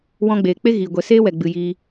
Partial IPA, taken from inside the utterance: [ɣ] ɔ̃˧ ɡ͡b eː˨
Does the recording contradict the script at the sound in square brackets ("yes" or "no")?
yes